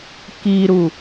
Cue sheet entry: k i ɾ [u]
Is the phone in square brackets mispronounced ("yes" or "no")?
no